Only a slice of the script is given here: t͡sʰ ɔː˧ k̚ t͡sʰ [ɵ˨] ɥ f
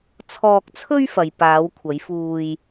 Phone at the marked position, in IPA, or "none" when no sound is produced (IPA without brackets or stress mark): ɵ˥